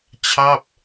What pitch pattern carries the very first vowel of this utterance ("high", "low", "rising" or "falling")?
falling